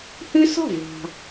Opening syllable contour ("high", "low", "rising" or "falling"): high